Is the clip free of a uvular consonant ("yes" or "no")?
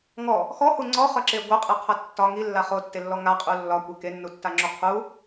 no